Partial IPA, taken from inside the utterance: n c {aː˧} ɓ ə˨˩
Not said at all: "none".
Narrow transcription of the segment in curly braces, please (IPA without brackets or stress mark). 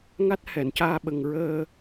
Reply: aː˧